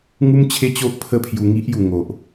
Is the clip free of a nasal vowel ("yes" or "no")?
yes